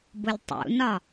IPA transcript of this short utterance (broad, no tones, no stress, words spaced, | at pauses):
bʊlʲtˤṵnɒ